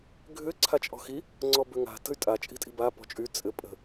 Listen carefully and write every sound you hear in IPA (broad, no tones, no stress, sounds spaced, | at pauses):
ɡʱ ʏ ǀʰ a t͡ʃʼ ɔ̤ x i | ŋ͡ǀ ɔ b ø ŋ a̤ t ə̤ y̯ tʼ a t͡ʃʼ i̤ tʼ i̤ b a p ɔ̤ t͡ʃʼ y t͡sʼ ɘ pʼ ə̤